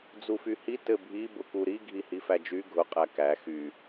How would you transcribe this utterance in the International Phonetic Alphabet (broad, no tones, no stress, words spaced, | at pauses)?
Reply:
d͡zufyhi tɘbʱi bʊkuɾi ɡʱihifæd͡ʒy ɡʱʊ qʼækæ xy